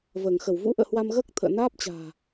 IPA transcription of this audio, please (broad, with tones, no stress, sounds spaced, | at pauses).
v əː˧˩ ŋ x ə˧˩ w v ṵ˧˥ ʔ ə̰ː˧˨ h w a˧ m ɣ əː˦˥ k̚ t̪ʰ ə̰ː˧˨ n aː˦˥ p̚ t͡ɕ a̤ː˨˩